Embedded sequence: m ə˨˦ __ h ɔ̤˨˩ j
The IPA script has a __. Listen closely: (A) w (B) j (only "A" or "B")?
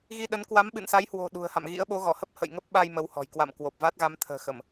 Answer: A